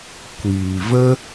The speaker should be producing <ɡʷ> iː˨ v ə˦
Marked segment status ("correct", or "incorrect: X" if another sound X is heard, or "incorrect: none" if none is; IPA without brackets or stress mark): incorrect: kʷ